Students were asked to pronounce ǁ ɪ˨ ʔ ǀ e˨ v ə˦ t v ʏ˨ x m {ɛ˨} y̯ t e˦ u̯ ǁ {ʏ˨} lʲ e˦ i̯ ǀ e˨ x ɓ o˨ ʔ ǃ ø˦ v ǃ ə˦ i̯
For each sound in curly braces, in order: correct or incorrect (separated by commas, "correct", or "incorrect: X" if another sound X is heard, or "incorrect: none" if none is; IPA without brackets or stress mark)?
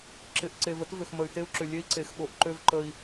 incorrect: ə˨, correct